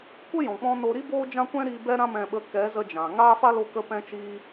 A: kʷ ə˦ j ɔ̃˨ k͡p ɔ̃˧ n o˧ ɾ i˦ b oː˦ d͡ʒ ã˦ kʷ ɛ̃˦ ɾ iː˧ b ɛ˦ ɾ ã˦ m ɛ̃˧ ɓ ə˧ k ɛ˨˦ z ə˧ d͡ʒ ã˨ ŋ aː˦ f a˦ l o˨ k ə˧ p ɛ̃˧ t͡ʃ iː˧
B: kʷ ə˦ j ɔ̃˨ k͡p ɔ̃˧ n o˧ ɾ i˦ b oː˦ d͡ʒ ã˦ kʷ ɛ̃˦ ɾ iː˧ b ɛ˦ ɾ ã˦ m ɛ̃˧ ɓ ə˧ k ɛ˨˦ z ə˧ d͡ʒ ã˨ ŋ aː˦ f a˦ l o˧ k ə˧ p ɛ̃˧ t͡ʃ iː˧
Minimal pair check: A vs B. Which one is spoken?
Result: B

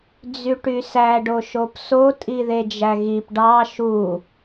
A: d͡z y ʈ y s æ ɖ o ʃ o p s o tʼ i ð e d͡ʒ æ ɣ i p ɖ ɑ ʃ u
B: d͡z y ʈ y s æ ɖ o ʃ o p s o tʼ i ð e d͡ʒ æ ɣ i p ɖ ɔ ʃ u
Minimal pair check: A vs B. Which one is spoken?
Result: A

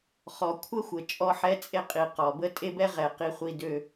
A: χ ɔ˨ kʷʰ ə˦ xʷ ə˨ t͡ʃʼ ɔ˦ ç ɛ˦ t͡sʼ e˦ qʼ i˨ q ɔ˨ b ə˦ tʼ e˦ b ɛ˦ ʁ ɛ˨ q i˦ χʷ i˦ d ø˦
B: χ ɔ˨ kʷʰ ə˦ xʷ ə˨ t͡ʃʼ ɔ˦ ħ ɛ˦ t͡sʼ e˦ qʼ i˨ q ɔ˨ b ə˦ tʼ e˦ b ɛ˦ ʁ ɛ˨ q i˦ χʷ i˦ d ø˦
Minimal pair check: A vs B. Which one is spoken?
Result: B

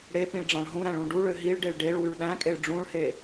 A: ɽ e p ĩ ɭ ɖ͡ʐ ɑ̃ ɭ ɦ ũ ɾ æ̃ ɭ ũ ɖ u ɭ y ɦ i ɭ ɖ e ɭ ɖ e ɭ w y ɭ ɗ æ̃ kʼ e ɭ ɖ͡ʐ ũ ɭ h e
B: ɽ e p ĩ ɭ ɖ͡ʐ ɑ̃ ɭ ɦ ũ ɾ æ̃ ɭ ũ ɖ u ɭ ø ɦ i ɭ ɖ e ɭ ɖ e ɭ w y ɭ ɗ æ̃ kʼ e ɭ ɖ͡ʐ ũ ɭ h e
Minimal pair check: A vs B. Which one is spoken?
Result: B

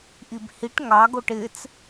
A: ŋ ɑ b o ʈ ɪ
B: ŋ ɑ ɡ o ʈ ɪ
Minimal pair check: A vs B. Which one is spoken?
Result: B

